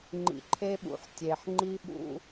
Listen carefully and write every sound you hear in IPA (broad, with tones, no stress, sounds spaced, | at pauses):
ŋ͡ǃ ḭ˨ ǃʰ e˦ ɓ ṵ˨ ħ tʲ e˨ ħ ŋ͡ǃ i˦ ɓ ṵ˦